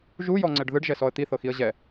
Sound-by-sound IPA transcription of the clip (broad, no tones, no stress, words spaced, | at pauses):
ʒujɔŋ͡ǀɛɖ ðɯɖʒɛsɔə̯ t̪iθɤxiə̯ ʑɛ